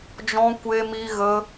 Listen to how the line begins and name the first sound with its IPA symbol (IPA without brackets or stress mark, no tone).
d͡ʒ